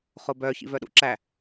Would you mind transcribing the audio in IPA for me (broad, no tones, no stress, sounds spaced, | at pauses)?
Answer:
χ o b œ ç ḭ v œ ɗ ṵ ǁ æ